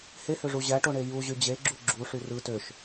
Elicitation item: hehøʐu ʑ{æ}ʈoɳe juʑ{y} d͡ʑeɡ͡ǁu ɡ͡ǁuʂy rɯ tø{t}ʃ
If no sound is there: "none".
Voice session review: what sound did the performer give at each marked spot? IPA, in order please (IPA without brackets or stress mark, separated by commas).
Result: æ, y, none